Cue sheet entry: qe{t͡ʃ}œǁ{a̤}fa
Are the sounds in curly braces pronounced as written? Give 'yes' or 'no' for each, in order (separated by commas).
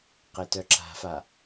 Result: no, yes